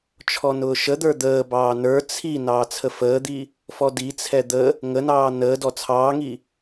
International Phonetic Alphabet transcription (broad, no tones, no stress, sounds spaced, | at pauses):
t͡ʃʰ ɔ n ʊː ʃ ə d̪ ə˞ d̪ əː b ɑː n ə˞ t͡sʰ i n ɑː t͡sʰ ə f əː d̪ i | f ɔ d i t͡sʰ ɛ d̪ ə | ŋ ə n ɑː n əː d ɔ t͡sʰ ɑː ŋ i